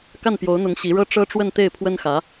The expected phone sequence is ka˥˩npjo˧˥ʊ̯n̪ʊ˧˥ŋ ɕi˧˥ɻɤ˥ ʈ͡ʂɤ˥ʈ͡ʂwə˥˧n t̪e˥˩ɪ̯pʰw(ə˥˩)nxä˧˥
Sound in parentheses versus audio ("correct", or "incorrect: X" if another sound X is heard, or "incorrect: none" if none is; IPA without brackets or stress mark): incorrect: ə˥